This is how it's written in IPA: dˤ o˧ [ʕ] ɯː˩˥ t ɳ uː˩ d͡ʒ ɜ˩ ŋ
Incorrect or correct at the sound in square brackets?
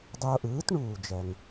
incorrect: ʔ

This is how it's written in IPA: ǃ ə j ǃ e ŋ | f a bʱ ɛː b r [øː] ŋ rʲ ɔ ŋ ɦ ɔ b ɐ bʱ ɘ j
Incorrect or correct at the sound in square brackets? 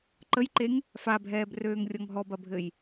correct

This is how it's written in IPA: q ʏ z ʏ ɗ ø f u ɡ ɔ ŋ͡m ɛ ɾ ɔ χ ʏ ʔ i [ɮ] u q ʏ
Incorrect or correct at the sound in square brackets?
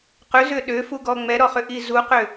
incorrect: z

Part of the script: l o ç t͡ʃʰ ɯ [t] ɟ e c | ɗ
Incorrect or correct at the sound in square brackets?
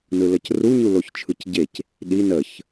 incorrect: c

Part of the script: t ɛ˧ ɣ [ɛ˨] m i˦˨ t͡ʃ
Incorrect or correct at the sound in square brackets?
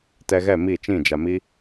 incorrect: ɛ˦˨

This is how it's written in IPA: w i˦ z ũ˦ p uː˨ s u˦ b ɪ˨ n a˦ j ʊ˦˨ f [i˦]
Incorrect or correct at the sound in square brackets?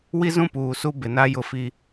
correct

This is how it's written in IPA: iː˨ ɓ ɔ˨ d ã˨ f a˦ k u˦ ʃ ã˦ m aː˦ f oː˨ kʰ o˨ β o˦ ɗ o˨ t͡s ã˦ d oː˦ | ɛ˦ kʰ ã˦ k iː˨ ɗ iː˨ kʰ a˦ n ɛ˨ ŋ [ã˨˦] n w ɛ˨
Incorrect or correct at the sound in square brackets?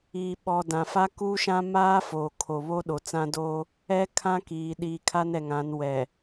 correct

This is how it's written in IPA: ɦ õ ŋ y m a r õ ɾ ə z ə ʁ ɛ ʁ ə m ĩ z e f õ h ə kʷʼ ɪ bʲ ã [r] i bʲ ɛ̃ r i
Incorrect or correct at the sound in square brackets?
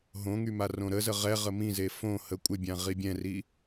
incorrect: ʁ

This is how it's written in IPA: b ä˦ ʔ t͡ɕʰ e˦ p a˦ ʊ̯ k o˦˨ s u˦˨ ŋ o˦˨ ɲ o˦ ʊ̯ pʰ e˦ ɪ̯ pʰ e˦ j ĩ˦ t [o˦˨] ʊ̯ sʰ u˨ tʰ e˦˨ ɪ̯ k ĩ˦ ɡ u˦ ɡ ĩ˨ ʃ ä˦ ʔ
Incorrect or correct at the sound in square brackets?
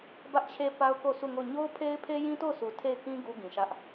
correct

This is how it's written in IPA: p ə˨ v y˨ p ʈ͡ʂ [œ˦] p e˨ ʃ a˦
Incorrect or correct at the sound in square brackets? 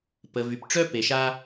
correct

